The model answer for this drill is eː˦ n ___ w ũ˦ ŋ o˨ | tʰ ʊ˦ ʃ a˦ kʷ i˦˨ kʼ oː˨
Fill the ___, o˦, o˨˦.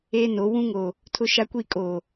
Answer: o˨˦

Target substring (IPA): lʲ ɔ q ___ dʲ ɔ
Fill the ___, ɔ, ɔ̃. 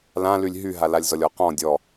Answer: ɔ̃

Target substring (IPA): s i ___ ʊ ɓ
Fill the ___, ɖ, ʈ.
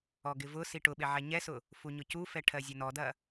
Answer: ʈ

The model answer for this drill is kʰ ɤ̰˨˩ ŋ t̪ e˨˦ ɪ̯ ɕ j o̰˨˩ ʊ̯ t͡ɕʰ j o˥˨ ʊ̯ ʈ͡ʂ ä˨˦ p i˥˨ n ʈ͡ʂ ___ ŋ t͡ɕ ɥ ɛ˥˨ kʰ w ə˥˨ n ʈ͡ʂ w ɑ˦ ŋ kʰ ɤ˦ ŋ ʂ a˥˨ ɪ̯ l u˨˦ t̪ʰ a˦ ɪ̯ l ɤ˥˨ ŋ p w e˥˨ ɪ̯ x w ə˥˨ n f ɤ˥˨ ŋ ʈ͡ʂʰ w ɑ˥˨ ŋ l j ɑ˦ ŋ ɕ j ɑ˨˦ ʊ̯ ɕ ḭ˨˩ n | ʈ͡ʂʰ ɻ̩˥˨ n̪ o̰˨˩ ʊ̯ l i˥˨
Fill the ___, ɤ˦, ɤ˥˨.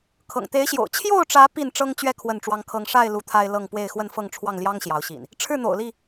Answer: ɤ˦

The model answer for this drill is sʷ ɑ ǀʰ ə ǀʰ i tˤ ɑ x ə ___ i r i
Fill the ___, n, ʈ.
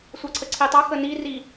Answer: n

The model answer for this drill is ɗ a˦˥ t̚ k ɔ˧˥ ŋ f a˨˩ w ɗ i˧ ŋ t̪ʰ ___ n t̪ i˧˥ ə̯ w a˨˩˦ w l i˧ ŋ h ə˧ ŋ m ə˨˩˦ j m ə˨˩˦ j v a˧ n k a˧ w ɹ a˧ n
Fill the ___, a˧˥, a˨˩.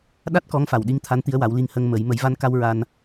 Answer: a˧˥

